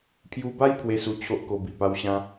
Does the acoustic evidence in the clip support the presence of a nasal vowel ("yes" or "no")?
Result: yes